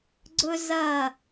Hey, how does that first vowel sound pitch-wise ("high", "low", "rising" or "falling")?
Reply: high